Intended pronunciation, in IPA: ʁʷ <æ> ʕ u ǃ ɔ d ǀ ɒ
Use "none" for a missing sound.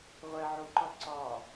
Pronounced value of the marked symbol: ɛ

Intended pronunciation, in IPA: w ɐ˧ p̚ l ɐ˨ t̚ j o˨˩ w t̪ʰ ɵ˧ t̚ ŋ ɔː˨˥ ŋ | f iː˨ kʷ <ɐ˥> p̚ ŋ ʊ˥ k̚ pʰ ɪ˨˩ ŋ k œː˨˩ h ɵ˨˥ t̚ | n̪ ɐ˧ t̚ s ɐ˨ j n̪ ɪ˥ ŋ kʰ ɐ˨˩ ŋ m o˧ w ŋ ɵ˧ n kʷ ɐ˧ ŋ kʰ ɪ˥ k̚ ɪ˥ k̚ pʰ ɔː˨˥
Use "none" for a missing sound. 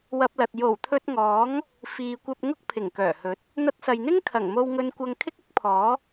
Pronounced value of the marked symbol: ɐ˧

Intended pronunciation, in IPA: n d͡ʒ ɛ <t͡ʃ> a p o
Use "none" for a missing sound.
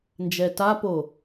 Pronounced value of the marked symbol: t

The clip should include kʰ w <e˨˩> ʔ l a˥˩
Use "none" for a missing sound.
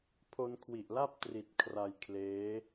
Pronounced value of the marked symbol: i˨˩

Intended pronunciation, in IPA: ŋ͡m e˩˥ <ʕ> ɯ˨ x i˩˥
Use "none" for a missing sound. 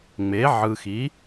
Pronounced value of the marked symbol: ʕ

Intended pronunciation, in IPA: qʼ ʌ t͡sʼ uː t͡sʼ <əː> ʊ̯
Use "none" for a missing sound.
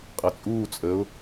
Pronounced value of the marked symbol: əː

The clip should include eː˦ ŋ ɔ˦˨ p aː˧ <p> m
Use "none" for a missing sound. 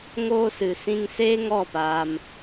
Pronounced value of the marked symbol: none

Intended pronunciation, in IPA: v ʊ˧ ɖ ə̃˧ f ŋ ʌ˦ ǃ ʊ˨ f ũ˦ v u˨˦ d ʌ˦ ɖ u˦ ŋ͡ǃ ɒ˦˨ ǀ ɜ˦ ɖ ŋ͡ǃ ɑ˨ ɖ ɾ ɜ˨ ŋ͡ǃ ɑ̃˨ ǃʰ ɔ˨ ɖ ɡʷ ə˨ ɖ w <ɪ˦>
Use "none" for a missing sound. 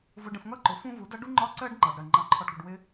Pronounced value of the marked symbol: ɪ˦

